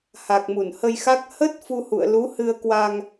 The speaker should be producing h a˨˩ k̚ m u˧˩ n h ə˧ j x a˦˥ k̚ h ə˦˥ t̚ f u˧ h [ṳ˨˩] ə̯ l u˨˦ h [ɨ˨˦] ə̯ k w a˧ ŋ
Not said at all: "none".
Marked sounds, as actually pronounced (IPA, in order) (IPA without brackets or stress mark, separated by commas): ṵ˧˨, ɨ˧